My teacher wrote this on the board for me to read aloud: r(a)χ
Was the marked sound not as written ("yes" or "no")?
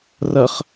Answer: yes